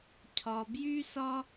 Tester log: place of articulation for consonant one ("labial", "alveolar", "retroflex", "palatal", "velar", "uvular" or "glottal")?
palatal